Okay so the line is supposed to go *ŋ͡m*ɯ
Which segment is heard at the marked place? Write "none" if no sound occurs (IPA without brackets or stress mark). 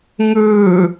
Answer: ŋ